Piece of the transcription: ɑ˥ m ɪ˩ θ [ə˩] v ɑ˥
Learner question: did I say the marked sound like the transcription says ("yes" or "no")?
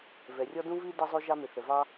yes